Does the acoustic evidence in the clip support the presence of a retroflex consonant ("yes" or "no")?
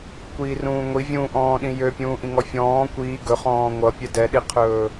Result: no